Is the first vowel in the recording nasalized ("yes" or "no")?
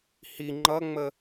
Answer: no